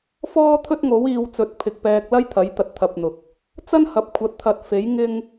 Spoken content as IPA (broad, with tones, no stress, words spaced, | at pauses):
fɔː˥t̪ʰɵ˥t̚ŋo˨˥w iː˨˧wt͡sɵ˨˥t̚pʰɪ˨k̚ pɛː˧k̚lɐ˥jt̪ʰɐ˨˥j t̪ɐ˧t̚t̪ʰɐ˧p̚n̪ʊ˨k̚ | t͡sɐ˥nhɐ˨˥p̚ kʷʰɐ˨˥t̚t̪ʰɐ˨t̚fe˨˥j ŋɪ˥ŋ